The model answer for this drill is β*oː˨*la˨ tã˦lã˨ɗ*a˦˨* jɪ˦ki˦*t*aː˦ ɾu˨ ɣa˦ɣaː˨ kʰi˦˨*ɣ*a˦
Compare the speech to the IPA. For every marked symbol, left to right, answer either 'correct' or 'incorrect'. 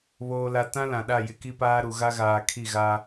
correct, correct, incorrect: p, correct

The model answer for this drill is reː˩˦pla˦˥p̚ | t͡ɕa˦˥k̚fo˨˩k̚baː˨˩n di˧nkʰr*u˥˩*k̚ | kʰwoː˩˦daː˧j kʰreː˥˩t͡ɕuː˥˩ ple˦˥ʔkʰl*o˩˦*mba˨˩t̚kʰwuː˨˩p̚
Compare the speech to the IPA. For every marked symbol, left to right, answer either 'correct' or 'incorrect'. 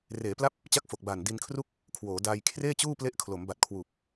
correct, correct

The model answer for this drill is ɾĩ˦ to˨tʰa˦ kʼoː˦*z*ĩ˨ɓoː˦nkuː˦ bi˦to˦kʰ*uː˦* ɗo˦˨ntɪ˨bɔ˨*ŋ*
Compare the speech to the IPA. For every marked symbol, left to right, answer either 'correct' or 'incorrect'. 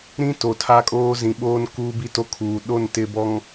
correct, incorrect: uː˨, correct

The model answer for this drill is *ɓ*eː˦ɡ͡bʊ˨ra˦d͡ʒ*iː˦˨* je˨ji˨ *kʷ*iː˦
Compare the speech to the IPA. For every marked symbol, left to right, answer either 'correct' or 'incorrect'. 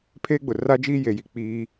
incorrect: pʰ, incorrect: iː˦, incorrect: k͡p

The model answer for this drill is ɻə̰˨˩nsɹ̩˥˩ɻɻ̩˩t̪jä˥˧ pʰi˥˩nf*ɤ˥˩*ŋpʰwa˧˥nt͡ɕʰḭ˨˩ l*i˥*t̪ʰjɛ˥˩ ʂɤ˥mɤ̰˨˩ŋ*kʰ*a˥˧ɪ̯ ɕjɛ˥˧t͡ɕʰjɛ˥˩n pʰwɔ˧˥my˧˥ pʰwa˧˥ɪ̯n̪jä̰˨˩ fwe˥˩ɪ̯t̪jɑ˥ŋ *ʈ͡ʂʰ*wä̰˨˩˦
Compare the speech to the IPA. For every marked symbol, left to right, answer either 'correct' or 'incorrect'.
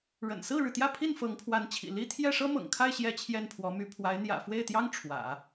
incorrect: ɤ˧˥, correct, correct, correct

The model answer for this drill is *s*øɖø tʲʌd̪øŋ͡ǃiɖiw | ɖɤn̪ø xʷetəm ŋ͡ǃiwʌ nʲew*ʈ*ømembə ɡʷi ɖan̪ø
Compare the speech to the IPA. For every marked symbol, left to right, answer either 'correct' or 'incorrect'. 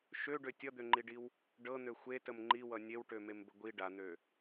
incorrect: ʃ, correct

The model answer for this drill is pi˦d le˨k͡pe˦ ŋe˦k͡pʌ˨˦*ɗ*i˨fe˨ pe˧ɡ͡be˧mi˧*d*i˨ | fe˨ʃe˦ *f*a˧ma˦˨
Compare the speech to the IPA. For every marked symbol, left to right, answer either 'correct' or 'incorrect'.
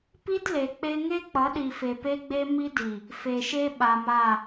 correct, correct, incorrect: ɓ

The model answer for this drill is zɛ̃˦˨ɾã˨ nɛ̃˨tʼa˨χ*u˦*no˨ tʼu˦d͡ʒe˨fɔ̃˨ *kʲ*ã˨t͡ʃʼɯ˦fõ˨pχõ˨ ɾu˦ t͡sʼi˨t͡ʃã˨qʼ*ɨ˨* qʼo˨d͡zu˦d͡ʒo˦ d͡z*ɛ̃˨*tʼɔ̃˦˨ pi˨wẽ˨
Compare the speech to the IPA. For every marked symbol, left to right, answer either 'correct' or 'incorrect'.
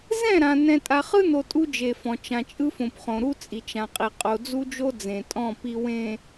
incorrect: ɯ˦, incorrect: t͡ʃ, incorrect: i˨, incorrect: ẽ˨

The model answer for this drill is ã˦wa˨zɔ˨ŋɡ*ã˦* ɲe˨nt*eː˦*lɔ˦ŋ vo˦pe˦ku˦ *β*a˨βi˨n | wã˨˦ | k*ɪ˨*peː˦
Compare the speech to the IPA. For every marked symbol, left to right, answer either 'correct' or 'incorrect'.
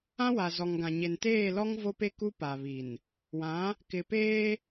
incorrect: ã˨, incorrect: eː˦˨, incorrect: p, correct

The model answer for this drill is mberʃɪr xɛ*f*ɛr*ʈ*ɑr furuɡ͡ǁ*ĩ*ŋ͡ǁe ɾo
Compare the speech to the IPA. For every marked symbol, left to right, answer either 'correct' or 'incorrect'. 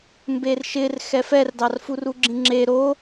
correct, incorrect: d, correct

